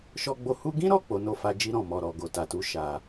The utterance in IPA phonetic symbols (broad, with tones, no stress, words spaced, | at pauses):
ʃɔ˧ɡ͡bo˧ hu˧ɡĩ˦ɾɔ˦˨ k͡po˨˦no˧fa˧ d͡ʒi˧ɾɔ̃˨ mɔ˨ɾɔ˨ɡo˨ ta˨tu˨˦ ʃa˧